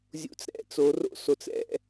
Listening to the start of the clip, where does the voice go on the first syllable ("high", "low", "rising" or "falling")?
rising